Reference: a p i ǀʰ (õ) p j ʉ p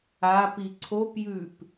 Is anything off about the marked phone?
yes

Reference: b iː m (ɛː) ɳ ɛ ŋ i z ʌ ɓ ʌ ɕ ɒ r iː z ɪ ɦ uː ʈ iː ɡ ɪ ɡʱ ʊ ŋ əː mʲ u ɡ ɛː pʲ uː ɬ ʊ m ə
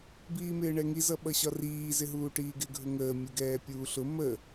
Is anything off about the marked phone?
yes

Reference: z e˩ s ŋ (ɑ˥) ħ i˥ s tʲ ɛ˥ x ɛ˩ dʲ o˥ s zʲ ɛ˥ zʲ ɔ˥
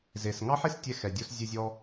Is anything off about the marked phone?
no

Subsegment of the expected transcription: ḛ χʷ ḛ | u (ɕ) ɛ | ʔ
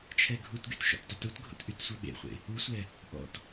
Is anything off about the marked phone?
yes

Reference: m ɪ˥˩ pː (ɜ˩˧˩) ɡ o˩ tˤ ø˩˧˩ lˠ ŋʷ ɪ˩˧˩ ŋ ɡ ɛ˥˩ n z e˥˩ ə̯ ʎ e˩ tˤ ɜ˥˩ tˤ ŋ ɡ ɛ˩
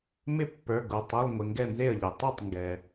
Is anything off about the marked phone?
yes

